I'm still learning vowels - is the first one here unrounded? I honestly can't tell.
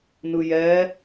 yes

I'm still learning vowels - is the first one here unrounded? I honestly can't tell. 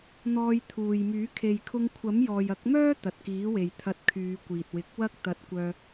no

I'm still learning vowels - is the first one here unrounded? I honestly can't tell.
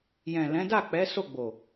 yes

